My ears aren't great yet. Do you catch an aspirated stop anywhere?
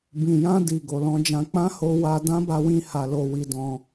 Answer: no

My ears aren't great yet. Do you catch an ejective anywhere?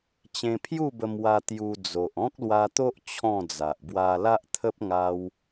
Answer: no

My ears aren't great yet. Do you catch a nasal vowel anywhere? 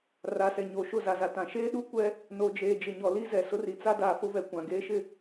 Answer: yes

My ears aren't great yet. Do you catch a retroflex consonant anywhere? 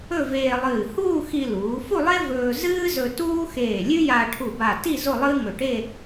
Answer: yes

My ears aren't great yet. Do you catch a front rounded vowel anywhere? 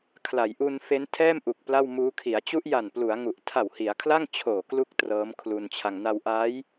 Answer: no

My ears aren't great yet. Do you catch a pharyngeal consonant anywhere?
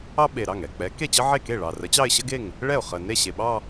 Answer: yes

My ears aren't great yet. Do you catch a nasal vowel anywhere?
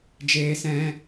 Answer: yes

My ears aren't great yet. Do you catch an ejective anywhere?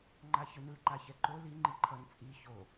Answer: yes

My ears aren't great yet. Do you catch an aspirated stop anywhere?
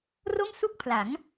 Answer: yes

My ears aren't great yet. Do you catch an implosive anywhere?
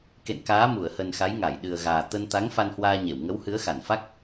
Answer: yes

